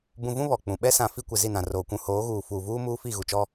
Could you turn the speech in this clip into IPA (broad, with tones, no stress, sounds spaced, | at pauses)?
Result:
b ũ˨ v ũ˦ β ɔ˨ k͡p ũ˨ ɓ ɛ˦ s ã˨ f i˦ kʷ ɪ˨ z i˦˨ n ã˨ r oː˨ kʷ ũ˨ h oː˨˦ ɣ uː˨ f uː˨ v uː˦ m uː˦ f i˦˨ ɣ u˨ t͡ʃ ɔ˦